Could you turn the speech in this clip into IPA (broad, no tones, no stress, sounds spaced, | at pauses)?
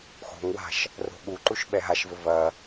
x o̤ ŋ w a̤ ʃ | r o̤ ɠ u ǃ u ʃ ɓ ɛ ɦ a ʃ v ɘ v ɐ